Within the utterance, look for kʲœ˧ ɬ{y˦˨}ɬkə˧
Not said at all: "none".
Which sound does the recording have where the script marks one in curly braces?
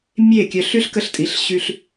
y˦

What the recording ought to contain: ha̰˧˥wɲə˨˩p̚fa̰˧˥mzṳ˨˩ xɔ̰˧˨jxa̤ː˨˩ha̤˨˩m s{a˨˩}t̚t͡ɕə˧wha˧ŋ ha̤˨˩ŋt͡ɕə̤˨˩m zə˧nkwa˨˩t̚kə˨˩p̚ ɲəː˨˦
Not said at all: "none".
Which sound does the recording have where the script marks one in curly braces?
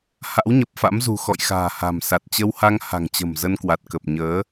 a˨˩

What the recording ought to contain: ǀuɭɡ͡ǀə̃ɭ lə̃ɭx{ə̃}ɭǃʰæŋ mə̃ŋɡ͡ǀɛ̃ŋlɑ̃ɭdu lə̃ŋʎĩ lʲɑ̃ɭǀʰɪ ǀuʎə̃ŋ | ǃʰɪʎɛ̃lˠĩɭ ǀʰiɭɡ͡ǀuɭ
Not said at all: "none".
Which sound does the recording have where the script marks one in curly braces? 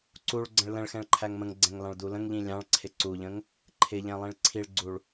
ɛ̃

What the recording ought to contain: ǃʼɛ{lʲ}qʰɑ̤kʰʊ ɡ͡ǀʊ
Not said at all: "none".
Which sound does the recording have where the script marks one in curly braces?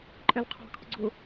l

